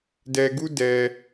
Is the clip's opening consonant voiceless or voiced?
voiced